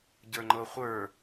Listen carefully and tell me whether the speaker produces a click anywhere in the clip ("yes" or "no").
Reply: yes